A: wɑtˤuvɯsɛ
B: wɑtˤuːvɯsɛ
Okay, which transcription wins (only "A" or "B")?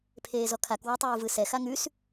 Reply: B